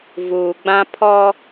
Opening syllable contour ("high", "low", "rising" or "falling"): low